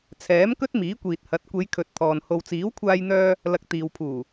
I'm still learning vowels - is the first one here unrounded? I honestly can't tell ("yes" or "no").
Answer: yes